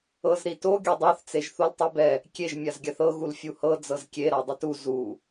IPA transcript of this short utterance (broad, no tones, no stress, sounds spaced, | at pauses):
ɤ z ɾ i t o ɡʲ ɤ dˤ a θ t͡s e ʒ θ o l tˤ i b ɛ | kʲ e ʒ mʲ a z ɡʲ a θ ɤ ɣ u l fʲ u h ɤ d͡z ɤ z kʲ e ɾ a dˤ ɯ t u z u